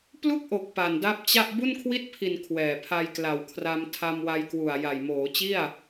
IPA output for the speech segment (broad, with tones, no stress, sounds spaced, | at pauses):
p l u˥˩ k̚ ʔ o˨˩ k̚ p a˨˩ n d a˦˥ p̚ t͡ɕ a˥˩ ʔ b u˥˩ n kʰ w i˥˩ t̚ pʰ i˨˩ n kʰ w ɛː˨˩ pʰ a˧ j k l a˨˩ w kʰ r a˧ m tʰ a˧ m w a˧ j k w u˨˩ a̯ j a˨˩ j m oː˩˦ t͡ɕ i˥˩ a̯